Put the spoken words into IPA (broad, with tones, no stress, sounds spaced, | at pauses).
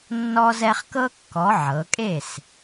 nː ɔ˦ z ɛ˦ χ k ɤ˦ kː ɔ˩˧ ʕ ɤ˩˧ kʼ e˥˩ s